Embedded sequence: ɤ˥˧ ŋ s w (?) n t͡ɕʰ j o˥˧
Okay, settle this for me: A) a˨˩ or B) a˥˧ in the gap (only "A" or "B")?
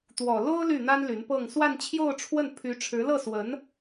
B